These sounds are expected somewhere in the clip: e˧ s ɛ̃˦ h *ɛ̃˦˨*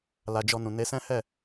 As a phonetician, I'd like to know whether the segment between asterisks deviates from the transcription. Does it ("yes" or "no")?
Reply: yes